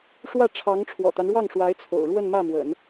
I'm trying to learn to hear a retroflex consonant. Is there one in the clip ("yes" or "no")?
yes